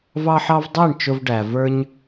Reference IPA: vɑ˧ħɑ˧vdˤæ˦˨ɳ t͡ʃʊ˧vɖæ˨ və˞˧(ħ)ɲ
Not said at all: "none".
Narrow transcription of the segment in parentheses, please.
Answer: none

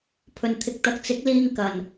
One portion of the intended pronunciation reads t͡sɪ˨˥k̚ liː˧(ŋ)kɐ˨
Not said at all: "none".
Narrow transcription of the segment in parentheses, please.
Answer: ŋ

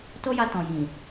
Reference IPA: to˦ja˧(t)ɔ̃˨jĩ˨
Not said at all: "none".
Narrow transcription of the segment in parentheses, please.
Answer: t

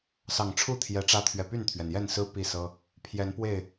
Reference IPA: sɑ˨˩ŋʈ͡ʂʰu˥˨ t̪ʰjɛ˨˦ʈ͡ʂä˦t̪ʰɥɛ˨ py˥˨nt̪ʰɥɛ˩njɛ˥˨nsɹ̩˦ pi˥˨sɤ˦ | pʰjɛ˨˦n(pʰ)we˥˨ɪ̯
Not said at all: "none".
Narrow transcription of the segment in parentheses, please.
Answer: p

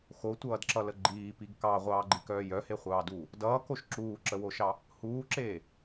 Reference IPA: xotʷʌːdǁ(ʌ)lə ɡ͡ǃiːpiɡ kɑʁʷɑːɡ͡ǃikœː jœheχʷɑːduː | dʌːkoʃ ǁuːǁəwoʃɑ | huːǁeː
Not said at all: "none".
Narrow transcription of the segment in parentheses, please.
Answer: ʌ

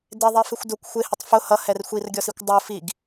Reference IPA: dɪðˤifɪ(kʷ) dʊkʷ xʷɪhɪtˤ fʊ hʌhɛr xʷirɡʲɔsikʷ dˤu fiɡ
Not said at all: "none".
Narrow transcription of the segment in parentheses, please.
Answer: xʷ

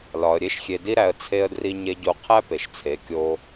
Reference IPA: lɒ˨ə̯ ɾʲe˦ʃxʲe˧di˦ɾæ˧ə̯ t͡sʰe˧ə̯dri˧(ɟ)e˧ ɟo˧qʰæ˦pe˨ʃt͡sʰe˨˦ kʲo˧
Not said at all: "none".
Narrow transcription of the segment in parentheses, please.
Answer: ɲ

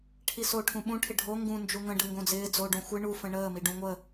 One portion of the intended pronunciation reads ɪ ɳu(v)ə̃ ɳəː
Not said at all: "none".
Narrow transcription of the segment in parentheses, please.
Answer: f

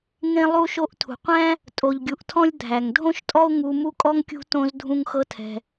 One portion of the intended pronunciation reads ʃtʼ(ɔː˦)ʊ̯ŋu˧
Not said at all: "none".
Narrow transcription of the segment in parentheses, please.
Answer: ɔ˦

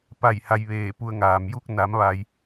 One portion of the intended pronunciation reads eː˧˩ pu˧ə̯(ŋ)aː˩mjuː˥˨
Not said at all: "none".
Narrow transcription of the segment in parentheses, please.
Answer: ŋ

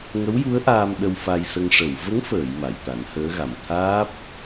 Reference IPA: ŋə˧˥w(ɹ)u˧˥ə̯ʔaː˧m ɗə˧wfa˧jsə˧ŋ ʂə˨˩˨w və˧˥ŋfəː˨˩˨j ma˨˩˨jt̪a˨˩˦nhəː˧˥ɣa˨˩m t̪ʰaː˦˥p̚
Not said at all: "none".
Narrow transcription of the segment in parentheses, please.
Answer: j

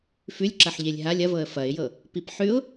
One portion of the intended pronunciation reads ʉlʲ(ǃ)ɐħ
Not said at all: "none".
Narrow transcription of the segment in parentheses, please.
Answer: ǁ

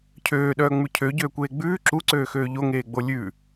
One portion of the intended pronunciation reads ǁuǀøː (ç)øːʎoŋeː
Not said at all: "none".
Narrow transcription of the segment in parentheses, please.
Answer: x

